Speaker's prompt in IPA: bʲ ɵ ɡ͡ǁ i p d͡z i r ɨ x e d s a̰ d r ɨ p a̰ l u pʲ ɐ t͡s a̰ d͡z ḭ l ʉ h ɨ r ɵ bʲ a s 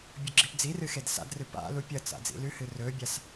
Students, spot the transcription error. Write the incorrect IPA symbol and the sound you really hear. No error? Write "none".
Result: none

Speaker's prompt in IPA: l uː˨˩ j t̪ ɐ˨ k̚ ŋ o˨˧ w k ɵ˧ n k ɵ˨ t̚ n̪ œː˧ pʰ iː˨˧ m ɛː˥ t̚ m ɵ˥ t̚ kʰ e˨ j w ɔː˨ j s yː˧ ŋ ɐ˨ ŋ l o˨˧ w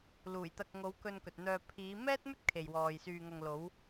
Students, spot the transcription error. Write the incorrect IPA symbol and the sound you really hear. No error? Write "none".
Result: none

